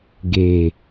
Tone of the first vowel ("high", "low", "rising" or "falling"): low